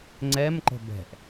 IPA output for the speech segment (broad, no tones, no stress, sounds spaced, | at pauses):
ŋ͡ǀ ɛ m ǃ ə̤ b ɛ̤ ʔ